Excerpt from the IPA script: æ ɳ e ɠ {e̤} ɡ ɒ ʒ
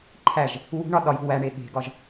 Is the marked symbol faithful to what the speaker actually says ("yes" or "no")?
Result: yes